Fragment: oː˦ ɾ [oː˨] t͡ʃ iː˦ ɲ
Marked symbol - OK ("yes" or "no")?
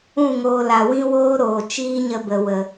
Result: yes